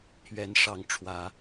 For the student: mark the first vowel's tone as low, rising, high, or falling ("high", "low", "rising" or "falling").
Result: rising